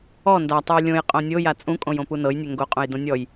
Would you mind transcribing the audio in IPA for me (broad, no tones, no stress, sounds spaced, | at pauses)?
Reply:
ɔ n d a tˤ u j lʲ õ j qʼ õ nʲ o j a t͡sʼ ũ kʼ õ j õ p u n ɤ j nʲ ø ŋ ɡ o qʼ ũ j d õ nʲ ɔ j